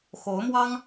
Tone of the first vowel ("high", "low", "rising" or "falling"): rising